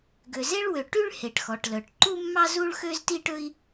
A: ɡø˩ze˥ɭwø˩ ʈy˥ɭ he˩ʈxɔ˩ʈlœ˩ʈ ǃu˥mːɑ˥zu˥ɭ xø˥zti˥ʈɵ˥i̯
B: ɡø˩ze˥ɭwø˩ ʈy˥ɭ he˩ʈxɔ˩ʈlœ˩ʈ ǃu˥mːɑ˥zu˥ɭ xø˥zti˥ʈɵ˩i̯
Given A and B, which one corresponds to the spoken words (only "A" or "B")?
A